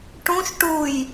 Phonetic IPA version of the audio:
ʈ ũ ʃ ʈ u j

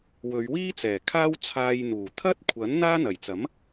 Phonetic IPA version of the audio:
w ɵ˨˧ ɥ w iː˥ t͡s ɛː˨˩ kʰ aː˥ w t͡sʰ aː˧ j n̪ uː˨˩ t̪ʰ ɐ˥ t̚ kʷʰ ɐ˨˥ n n̪ aː˥ n̪ ɐ˨˩ j t͡s ɐ˨˥ m

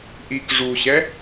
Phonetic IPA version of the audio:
ʔ i k ʐ u ɕ ɛ

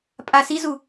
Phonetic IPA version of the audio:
pʼ a s i z u

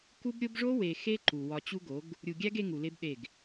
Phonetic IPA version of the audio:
k u˦ b ɾʲ o˦ b ʐ o˦ w e˨ x e˦ ǃ u˨ w ɒ˨ t͡ɕ u˦ ɡ o˨˦ ɡ | ɾʲ u˨ ɡʲ æ˦ ɡ e˦ ŋ u˨ l e˦ b ɗ e˦˨ ɡ

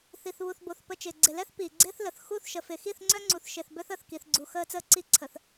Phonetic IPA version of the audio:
θ i˨ θ β u˨ θ b o˨ θ p ə˨ t͡ʃ ɪː˨ ɡ͡ǀ ɪ˨ l ɛ˦ θ p iː˨ ɡ͡ǀ ɪː˦ θ l ə˨ θ x u˦˨ θ ʃ ə˨ f ɪ˨ x i˦˨ θ ŋ͡ǀ œ˦ ŋ͡ǀ u˨ θ ʃ ɪ˨ θ b œ˦ θ əː˨ θ k i˨ θ ɡ͡ǀ u˨ x əː˦ t͡s əː˦ ǀ i˦ ǀʰ ə˨ θ

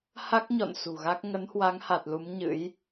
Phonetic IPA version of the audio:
h a˦˥ k̚ ɲ ɔ̰˧˨ n s ṳ˨˩ ɣ a˦˥ k̚ ŋ ə˨˦ n h w a˨˦ ŋ h a˨˩ t̚ l u˨˦ m ɲ ɨ̰˧˥ j

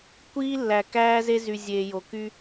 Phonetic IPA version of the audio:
kʷ iː˦ lː æ˨ k æː˦ z e˦ z y˨ zʲ eː˨ j o˨ k y˦

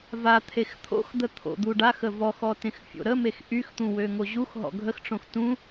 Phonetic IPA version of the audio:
v a t̪ʰ e x t̪ʰ o̰ x d̪ ə t̪ʰ o̰ d̪ u ɖ a x ə v ɔ x ɔ t ẽ x fʲ o̰ ɾ ə m e x ʔ y x t̪ ũ w ø ŋ o ʑ u x ɦ ɔ̰ ɡʱ ə x ʈ͡ʂ õ x t ũ

